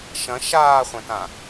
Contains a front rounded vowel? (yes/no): yes